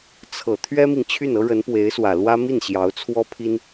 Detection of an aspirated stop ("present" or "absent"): present